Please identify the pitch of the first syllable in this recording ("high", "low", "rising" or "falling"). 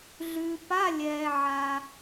low